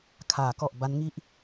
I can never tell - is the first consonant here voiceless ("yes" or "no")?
yes